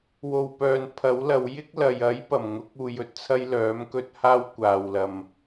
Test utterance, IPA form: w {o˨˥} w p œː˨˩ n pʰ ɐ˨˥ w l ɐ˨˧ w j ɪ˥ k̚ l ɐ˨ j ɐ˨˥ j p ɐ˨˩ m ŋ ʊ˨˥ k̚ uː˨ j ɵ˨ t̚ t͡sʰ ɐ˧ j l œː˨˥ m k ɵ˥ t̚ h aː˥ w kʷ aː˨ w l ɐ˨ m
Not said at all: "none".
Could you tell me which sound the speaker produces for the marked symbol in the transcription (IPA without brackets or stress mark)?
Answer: o˨˩